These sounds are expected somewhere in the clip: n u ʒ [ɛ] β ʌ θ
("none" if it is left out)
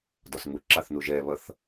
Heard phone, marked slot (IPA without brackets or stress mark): ɛ